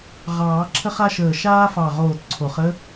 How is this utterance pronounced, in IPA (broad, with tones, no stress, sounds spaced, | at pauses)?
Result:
ʁ ɑː˨˩˦ ǁʰ ə˥ χ a˥ ʃ əː˧˩ ʃ aː˥ f ɑ˧˩ ʁ oː˧˩ t ǀʰ o˨˩˦ χ ə˥